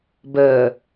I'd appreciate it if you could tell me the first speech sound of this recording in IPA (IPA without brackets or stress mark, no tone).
b